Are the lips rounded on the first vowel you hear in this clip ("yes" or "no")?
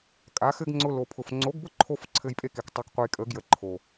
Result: no